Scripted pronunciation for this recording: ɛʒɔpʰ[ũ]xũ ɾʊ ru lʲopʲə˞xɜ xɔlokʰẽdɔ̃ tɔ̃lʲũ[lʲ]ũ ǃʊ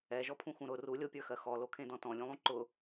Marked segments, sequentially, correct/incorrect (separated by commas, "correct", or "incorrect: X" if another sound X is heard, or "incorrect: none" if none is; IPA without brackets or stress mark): correct, incorrect: lˠ